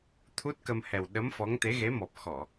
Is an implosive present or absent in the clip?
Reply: present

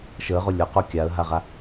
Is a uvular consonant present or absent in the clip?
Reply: present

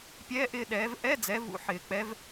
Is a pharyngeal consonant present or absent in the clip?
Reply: present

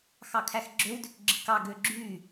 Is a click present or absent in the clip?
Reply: present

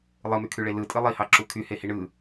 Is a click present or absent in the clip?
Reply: present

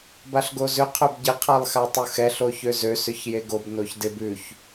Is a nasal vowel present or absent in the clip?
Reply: absent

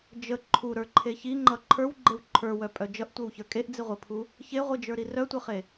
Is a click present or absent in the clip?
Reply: present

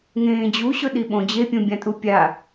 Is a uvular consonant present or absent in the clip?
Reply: absent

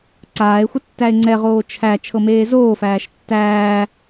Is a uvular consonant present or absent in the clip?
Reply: present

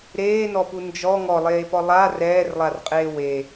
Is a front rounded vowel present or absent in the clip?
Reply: absent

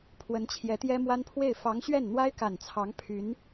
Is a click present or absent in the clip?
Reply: absent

